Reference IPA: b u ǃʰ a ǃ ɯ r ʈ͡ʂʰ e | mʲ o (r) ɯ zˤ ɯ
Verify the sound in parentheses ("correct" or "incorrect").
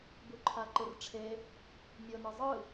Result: incorrect